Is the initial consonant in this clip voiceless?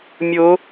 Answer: no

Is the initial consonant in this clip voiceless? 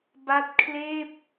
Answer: no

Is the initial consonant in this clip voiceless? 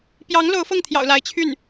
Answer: yes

